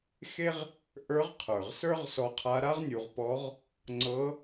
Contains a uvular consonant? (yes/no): yes